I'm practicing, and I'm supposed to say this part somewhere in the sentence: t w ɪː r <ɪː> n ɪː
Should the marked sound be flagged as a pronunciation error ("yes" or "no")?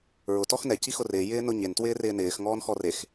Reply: no